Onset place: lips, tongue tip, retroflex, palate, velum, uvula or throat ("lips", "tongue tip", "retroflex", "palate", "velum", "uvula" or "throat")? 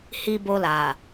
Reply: throat